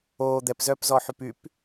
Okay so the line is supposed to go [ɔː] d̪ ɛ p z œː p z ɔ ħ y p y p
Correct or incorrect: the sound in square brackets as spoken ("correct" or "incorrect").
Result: incorrect